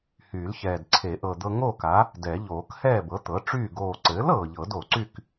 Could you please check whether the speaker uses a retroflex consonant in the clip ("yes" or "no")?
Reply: yes